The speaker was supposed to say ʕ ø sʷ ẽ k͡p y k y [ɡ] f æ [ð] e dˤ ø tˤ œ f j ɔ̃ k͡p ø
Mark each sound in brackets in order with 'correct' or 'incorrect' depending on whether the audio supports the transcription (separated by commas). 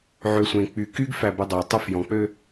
correct, incorrect